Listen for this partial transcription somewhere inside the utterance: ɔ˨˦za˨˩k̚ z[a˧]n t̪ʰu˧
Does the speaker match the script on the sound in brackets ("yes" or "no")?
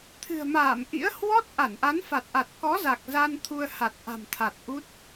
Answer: yes